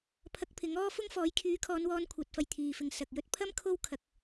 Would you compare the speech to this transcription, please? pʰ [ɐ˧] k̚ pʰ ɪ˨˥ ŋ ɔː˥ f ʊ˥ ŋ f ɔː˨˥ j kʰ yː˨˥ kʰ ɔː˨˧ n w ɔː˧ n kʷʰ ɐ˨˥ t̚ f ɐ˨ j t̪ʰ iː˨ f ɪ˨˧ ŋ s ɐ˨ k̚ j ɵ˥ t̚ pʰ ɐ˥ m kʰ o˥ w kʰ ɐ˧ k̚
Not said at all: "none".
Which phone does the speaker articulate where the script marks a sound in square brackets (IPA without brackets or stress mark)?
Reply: ɐ˧